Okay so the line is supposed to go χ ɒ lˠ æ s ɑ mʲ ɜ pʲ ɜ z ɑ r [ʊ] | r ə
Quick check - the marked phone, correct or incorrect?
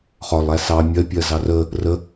incorrect